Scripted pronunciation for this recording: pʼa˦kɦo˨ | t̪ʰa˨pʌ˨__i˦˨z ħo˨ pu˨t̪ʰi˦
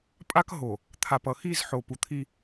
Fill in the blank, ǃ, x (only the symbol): x